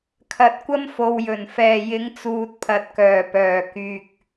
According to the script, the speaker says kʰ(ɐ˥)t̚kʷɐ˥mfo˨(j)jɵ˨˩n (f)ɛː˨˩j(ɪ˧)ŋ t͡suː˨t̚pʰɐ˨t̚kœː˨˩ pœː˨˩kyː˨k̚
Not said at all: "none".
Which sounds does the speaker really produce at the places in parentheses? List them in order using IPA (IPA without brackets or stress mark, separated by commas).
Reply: ɐ˨˥, w, f, ɪ˨˥